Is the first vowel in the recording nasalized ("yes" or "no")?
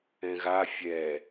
yes